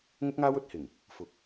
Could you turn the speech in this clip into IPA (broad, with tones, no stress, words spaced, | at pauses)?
ŋʊ˥k̚ŋaː˥w ɵ˧t̚hɪ˨˩ŋ | fʊ˨˥k̚